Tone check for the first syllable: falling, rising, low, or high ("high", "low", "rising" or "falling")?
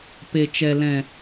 low